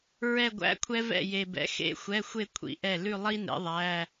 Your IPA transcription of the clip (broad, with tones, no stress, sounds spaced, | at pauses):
ɹ ɛ˥˧ ɡʷ æ̰˧˥˧ kʷʰ ɛ˥ v ɛ̰˥˩ j e˨ b ɛ̰˨ x ḛ˧˥˧ xʷ ɛ˧˥˧ xʷ e˥˧ kʷʰ ḭ˨ ʔ ɛ˥˩ l ʉ˥˧ lˠ i˥ n ḛ˨˥ ðˤ æ˧˥˧